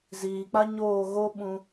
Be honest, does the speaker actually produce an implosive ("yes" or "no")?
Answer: yes